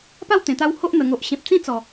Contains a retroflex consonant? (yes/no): no